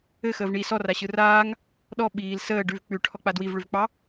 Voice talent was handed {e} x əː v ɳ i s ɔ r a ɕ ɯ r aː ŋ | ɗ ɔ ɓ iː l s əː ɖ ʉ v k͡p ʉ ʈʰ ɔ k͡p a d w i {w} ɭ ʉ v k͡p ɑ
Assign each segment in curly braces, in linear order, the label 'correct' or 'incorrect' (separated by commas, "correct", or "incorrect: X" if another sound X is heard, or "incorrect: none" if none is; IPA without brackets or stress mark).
incorrect: ɘ, incorrect: v